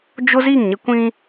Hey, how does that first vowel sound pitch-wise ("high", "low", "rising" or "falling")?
high